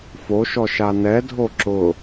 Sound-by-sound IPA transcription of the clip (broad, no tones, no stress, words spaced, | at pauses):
foʃɔʃa nɛdʱo ǁʊ